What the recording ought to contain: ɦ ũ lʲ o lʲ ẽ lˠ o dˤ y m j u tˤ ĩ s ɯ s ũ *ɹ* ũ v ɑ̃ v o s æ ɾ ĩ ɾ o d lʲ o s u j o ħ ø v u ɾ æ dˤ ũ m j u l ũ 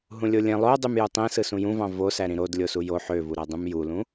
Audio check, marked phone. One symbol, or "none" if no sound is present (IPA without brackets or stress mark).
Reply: j